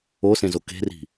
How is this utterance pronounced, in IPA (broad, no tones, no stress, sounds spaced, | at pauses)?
o s ẽ z o k e̤ r i̤